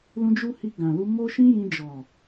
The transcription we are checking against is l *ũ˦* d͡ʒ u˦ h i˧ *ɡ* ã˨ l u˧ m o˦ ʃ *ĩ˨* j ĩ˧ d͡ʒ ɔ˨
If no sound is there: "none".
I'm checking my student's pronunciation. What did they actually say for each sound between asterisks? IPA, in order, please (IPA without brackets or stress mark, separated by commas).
ũ˦, ɡ, ĩ˦